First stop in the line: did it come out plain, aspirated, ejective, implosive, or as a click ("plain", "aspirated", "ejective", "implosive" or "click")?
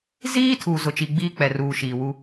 aspirated